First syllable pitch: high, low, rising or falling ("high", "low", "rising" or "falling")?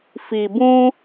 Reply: low